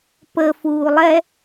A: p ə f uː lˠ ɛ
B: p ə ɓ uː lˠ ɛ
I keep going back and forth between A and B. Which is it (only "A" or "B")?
A